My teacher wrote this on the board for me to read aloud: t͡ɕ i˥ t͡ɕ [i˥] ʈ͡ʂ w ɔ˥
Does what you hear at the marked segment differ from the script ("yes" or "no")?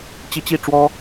yes